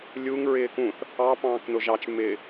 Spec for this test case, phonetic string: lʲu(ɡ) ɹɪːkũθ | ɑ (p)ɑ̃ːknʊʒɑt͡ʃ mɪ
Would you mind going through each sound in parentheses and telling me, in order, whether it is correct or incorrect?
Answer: incorrect: ŋ, correct

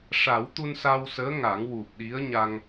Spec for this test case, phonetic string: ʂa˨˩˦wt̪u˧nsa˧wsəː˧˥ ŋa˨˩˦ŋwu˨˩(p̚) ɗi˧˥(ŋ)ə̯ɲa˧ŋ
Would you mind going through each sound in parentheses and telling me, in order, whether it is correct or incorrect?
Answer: correct, incorrect: none

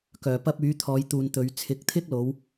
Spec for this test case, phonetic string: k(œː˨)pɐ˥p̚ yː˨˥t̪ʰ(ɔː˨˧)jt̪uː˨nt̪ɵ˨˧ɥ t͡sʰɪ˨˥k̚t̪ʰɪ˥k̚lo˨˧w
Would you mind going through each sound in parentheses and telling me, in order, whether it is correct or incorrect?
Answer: correct, correct

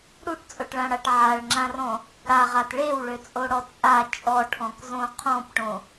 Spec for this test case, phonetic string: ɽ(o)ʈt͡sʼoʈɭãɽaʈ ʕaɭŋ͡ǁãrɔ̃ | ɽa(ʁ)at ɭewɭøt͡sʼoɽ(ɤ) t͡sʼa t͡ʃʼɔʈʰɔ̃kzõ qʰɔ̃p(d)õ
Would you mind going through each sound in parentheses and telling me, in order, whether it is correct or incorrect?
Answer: incorrect: u, correct, incorrect: ɔ, incorrect: ʈ

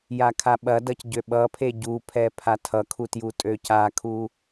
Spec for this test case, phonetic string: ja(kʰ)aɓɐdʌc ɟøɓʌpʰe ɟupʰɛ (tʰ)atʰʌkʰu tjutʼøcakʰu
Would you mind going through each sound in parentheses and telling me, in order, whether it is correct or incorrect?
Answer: correct, incorrect: pʰ

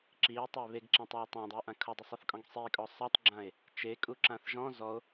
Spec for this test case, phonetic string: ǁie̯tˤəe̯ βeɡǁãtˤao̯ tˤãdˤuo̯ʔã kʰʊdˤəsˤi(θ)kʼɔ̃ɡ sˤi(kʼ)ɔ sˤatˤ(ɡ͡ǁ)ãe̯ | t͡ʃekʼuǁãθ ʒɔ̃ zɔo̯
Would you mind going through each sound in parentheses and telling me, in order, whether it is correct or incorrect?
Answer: correct, correct, correct

